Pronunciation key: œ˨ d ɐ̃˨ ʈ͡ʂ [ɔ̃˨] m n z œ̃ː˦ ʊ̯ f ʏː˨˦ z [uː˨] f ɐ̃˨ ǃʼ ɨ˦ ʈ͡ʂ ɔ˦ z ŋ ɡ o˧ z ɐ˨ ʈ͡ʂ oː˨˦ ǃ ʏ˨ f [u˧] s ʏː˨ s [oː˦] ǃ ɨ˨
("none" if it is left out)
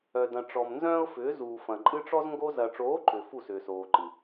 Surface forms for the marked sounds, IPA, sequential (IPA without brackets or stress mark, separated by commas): ɔ˨, uː˨, u˦˨, oː˨